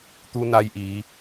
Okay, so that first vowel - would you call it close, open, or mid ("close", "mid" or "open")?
close